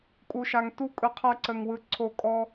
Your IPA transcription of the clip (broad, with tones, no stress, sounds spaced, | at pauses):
kʼ u˨ ʃ a˨ ŋ t u˦ kʼ ɯ˨ qʰ ɐ˦ ǀ ə˨ ŋ w ɯ˨ ǀʰ o˨ kʼ ɔ˦